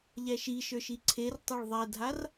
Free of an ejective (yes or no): yes